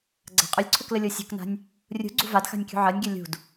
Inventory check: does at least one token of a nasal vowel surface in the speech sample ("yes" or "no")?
no